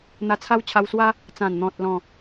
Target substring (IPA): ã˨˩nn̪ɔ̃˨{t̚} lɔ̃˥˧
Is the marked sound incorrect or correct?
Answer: correct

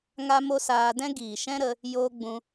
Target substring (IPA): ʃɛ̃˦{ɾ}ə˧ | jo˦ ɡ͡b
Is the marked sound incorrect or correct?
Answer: correct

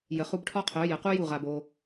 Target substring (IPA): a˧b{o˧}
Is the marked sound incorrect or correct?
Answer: correct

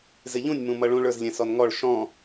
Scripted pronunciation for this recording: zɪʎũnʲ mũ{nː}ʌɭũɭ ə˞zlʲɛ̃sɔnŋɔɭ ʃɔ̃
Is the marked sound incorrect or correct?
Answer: incorrect: m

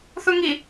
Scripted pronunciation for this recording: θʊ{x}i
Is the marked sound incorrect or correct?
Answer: incorrect: ŋ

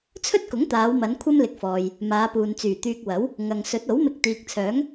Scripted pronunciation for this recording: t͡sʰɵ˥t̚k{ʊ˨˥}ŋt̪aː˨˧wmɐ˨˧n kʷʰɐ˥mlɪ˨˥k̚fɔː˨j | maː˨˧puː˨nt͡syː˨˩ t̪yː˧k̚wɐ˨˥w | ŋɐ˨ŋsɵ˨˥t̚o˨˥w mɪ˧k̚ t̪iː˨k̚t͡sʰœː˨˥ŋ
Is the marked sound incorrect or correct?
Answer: correct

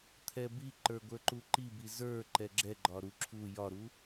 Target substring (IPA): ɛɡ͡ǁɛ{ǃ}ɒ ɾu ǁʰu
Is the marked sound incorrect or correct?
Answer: incorrect: ɡ͡ǃ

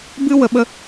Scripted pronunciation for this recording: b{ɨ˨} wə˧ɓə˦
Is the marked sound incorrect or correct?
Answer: incorrect: ɨ˦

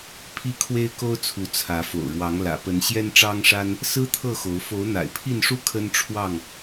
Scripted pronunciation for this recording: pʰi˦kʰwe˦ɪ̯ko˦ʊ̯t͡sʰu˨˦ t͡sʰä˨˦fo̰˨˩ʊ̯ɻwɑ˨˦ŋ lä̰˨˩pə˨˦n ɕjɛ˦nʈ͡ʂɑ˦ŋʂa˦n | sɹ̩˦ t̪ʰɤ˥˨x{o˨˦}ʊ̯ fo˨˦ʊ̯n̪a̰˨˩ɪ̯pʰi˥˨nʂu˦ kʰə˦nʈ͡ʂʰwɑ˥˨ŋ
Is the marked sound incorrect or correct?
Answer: correct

